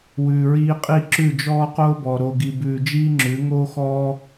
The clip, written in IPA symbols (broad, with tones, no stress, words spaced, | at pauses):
wʉː˨ɹiː˧qʼi˦˨ ǁʉ˦˨d͡ʒɔː˦qoː˦bɔ˨ ɾo˨ɡi˨bʉː˨ d͡ʒiː˦ŋ͡ǁʉ˨˦ ŋoː˦ xɔː˦